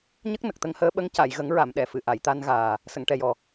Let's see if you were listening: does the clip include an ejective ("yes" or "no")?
no